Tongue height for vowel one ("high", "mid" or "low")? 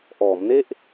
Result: mid